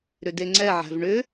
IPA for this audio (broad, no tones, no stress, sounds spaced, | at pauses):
ɾ ʏ d e ŋ͡ǀ ɛ ʕ æ̤ v ɳ ʏ